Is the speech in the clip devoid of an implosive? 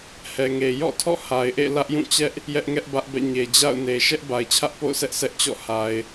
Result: yes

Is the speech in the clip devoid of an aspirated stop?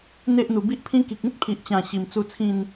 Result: no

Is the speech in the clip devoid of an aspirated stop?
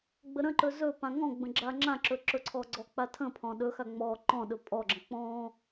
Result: no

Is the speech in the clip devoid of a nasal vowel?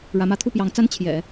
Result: yes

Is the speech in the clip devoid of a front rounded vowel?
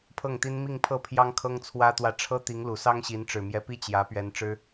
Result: yes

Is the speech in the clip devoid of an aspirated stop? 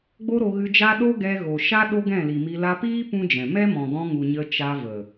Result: yes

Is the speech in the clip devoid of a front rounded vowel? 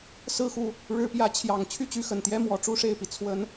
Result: no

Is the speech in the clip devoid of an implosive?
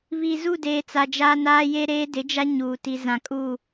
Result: yes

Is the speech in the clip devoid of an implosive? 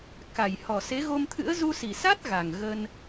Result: yes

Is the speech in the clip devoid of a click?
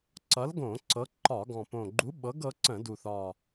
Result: no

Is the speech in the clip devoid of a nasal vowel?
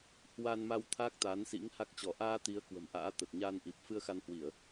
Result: yes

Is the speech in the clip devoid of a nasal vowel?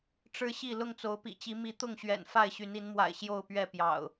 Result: yes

